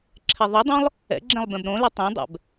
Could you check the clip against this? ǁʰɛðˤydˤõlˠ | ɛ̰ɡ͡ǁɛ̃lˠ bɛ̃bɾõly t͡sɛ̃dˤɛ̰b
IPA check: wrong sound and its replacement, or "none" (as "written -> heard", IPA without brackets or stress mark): t͡s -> tˤ